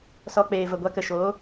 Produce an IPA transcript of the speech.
s ɔ˧ k͡p eː˨ v ə˨ ɡʷ a˧ k ə˨ ʃ oː˨˦

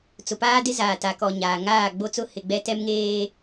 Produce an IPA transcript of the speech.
t͡s ʊ˨ p aː˦ d ɪ˦ z aː˨ t a˨ k ɔ˨ ɲ aː˨ ŋ aː˦˨ ɡ͡b o˦ t͡s ʊ˦ h ɪ˨ ɡ͡b ɛ˦ t ɛ˦ m ŋ eː˦

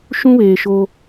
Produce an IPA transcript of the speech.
ʃ ũ˦ β eː˨ ʃ o˦

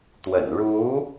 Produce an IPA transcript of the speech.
t̪ w ə̰˨˩ n ɻ u˧˥

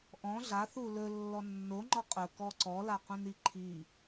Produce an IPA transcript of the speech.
ʔ ɔ̃ ɮ a θ u l ɵ lː ɔ nː o ŋ͡ǃ ɒ qʼ ɵ k ɔ ǀ ɔ l a q ũ n i ǃʰ i

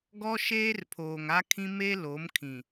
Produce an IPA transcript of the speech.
ɡ ɔ˦ ʃ eː˦ r pʰ oː˨ ŋ a˦ kʰ ĩ˦ m e˦ l o˨˦ m kʰ ĩ˨

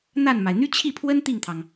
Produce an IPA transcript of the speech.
n̪ a˥˩ n m a˩ ɪ̯ n̪ y˥ t͡ɕʰ i˥˩ pʰ w ə˥ n t̪ i˥˩ ŋ t̪ʰ ɑ˩ ŋ

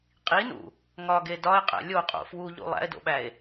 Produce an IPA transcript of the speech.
qʼ i n ṵ | ŋ ɒ ɡ e d ɒ e̯ qʼ æ̰ lʲ o qʼ o̰ f w u ʎ ṵ lˠ æ̰ e̯ d o̰ ɓ æ e̯

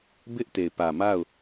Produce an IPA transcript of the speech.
b ɪ˦ ʔ t e˨ ɪ̯ p ä˨ m a˦˨ ʊ̯

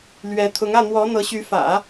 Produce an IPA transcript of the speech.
l ɥ ɛ˧˥ t̪ʰ ʊ˧˥ ŋ ä˥˩ n̪ w ɔ˧˥ n̪ ɤ˧˥ ɕ y˧˥ f ä̰˨˩˦

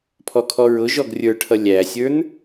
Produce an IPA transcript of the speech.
pʰ ɔ kʰ ɔ ɹ ʊ ʒ ɔ ɡ rʲ ə˞ ʈʰ ʌ lʲ æ sʲ ə˞ n

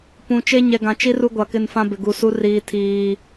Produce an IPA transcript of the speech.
p ũ˨ t͡ʃ e˦ ɲ ɛ˨ ɡ ã˨ t͡ʃ i˦ r u˦ ɡʷ a˨ k ɪ˦˨ n f ã˦ b ɪ˨ ɡ u˨ s u˦ r iː˨ tʰ iː˨

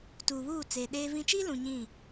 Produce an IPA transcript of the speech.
t uː˨ β uː˦˨ t͡s e˨ ɗ eː˦ v ĩ˦ t͡ʃ iː˦ l ũ˨ ɲ ĩ˦˨

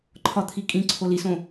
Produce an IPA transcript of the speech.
ǃʰ ɒ t̪ʰ i kʼ ĩ ǀʰ o l i s õ

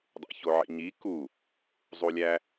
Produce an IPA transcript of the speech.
dˤ ḛ ç o ʕ ḭ ɲ i k u | zˤ u lʲ æ

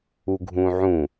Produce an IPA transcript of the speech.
u ɡʱ ũ ʕ ũ

